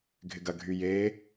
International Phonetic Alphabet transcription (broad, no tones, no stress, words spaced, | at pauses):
ɡʱɪɡɐ ɡʱyje